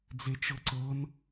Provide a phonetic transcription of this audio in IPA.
d͡zet͡ʃɤǀɤn

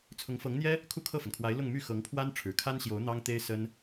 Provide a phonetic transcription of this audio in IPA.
t͡sʰʊ˧˥ŋfɤ˧˥ŋn̪jɛ˥ | kʰu˥˧kʰɤ˥˩fə˩nkʰwa˧˥ɪ̯ lʊ˥˧ŋmy˥˩ xɤ˧˥ŋpʰwa˥n ʈ͡ʂʰɻ̩˨˩kʰa˥nɕjo˧˥ʊ̯ n̪ɑ˥ŋt̪e˥ɪ̯ sə˥n

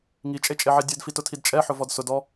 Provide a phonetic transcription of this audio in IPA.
ŋit͡ʃʼet͡ʃʼeʕe dʲɛdfitʊtʰid t͡ʃʼɛħʊvɔd sʊdɔ

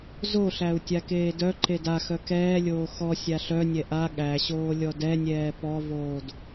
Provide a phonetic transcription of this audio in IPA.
zoɬæu̯ tʲakeːdœǃed axœ kɛːlʲoː xɔ sʲaɬœnʲɛ ʔa ɠæɕoː lʲɔdɛnʲɛː pɔvoːd

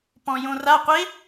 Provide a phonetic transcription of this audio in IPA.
pɔ̃jõra qʷe

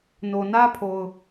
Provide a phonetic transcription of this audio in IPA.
no˨nä˦pʰo˨ʊ̯

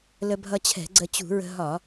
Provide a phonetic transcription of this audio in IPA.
lə˧bʱʌ˧t͡ɕʰɛ̤˧˩˧ɡ͡ǀə˧ t͡ɕṳ˧˩˧ɹə̤˧ ɦɒ˧˩˧

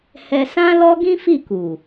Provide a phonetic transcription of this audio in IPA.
hɛ˨ sã˧lɔ˧ ɡĩ˦fi˦˨ku˨

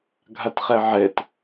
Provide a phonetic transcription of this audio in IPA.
ɡʱatχɛʕɛt

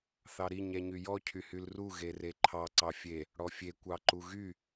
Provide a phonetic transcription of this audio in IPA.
θɑɾi ɲɛɲyjɔ cʰyhylru ɣereǃʰɑ ǀɑfʲe | ɽɔfʲe kʷɑǃuɣy

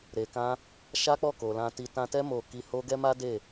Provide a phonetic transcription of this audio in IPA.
ɾe˧ kã˦ | ʃa˦k͡pɔ˦˨ ko˨lã˧ti˧ tã˧tɛ˦ mo˦˨ ki˧ho˦ɡɛ˦ ma˦de˦˨

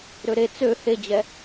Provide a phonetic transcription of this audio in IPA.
ɾøɾe t͡sø hed͡ʑɛ

